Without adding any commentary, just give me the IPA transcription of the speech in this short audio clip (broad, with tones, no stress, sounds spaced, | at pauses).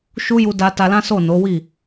ʃ u˦ j u˧ d a˧ t a˧ l ã˦ s o˦˨ n o˨˦ w i˦˨